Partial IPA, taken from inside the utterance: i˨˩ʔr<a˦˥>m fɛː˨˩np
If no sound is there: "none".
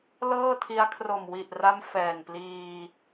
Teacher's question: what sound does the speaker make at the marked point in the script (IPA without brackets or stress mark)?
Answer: a˦˥